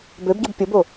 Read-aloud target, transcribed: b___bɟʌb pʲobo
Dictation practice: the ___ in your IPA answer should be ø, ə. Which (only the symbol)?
ø